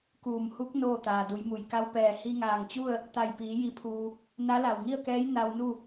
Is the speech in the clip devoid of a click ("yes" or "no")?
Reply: yes